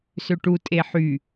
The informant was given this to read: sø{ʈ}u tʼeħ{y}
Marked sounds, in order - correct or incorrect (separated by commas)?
correct, correct